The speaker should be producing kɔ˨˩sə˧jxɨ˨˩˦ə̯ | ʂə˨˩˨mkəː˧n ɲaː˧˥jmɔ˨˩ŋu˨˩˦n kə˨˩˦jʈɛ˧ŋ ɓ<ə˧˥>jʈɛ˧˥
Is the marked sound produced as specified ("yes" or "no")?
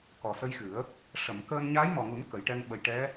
no